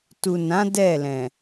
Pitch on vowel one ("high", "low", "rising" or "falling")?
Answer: low